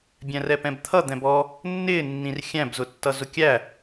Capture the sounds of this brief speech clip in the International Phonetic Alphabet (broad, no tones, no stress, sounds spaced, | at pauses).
bʲ æ̃ r ɛ p ɛ̃ b t̪ʰ ʌ d̪ ɛ̃ b ɔ | nː ɪː nː ĩ r xʲ æ̃ b z ʊ tː ʌ z ʊ kʲ æ